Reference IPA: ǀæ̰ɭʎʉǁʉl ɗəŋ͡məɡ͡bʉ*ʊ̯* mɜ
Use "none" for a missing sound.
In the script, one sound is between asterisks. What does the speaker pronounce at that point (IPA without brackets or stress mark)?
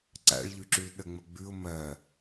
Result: ʊ̯